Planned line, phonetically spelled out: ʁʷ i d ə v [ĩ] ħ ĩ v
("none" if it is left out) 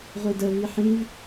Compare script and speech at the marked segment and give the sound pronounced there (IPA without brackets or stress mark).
i